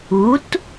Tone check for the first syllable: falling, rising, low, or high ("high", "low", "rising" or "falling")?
rising